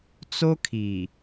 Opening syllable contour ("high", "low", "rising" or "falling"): high